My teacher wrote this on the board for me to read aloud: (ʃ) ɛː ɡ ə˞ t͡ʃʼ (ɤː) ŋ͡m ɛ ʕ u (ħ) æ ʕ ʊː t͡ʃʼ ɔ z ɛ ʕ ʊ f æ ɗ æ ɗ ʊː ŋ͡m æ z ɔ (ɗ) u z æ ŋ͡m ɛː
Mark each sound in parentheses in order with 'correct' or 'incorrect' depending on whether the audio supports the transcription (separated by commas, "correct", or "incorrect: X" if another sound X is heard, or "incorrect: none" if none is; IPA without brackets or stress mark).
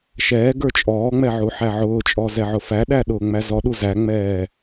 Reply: correct, incorrect: ɔː, correct, correct